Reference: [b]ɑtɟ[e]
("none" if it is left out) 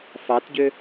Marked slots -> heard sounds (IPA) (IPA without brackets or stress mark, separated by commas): f, ø